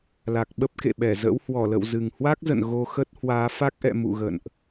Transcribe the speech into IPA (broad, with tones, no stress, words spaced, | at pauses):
la˨˩k̚ɓə˦˥p̚kḛ˧˨ɓɛ˧˩ zə̰˧˥whwɔ˧˩lə̰˧˨w zɨ˨˩ŋhwa˦˥k̚zə̰˧˨n ɣo˧xə˦˥t̚hwaː˨˦ fa˦˥k̚ʔɛ̰˧˨ mṵ˧˨ ɣə̰˧˨nʔ